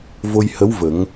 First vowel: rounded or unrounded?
rounded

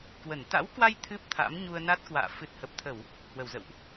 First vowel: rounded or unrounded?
unrounded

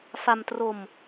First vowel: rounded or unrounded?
unrounded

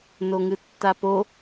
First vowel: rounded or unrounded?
rounded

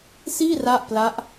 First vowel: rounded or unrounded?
unrounded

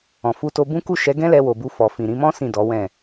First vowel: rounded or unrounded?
rounded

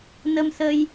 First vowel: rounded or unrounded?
unrounded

